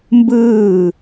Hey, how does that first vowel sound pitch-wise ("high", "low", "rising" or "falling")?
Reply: falling